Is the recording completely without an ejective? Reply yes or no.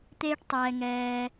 yes